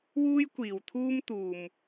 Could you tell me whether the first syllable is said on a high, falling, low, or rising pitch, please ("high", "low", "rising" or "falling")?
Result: high